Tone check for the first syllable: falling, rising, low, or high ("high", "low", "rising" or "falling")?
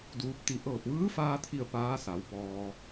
rising